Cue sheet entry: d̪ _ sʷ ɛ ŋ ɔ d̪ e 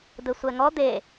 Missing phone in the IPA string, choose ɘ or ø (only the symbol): ɘ